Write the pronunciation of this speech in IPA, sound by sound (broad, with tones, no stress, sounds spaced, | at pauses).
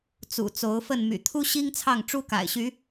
t͡s ṵ˨˩ t͡s o˨˦ ʊ̯ f ə˥˨ n m y̰˨˩ t̪ʰ u˦ ɕ i˦ ŋ t͡sʰ ɑ˥˨ ŋ ʈ͡ʂ u˦ k a̰˨˩ ɪ̯ ɕ y˨˦